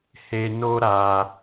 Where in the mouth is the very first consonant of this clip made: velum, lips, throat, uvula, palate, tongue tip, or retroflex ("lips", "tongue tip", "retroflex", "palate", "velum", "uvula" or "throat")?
throat